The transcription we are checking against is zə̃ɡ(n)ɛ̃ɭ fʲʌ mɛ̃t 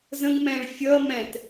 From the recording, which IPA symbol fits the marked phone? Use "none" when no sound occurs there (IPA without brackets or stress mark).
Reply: m